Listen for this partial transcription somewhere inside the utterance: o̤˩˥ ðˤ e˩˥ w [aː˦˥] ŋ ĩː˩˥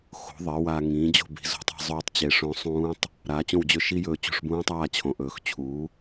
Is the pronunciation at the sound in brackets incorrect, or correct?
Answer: incorrect